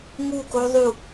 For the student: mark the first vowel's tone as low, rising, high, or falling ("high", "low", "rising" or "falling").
falling